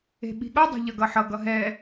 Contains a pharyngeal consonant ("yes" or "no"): yes